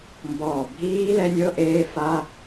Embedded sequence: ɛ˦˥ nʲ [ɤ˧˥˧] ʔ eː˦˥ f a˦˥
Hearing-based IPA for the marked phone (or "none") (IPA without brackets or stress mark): ɤ˧˥˧